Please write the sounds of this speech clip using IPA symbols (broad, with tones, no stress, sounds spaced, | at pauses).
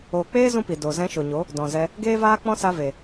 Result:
oː˨ k͡p eː˦ z ũ˦ p i˨ d o˨ z ɛ̃˧ ʃ o˨ ɲ o˨˦ | d ɔ̃˨ z ɛ˧ | ɡ eː˦ v aː˦ k͡p ɔ̃˦ s a˧ v e˨